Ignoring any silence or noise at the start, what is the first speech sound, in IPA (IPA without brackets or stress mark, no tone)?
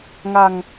ŋ